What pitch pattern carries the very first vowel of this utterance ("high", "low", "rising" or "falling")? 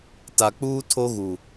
low